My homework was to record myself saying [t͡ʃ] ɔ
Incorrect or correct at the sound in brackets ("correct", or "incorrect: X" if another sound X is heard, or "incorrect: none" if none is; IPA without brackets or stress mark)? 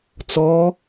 incorrect: t͡s